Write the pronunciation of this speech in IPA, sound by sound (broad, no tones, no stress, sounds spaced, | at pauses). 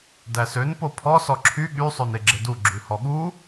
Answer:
d æ s ø n p o pʰ ɔ s ɔ ǁʰ y ɠ y sˤ ø n e ɡ͡ǁ e d u ɡ͡ǁ ʉ h ɔ ɠ u